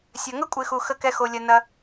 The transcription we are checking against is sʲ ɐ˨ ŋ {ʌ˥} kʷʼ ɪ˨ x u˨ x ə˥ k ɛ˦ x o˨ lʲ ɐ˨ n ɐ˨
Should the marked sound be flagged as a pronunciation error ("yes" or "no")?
yes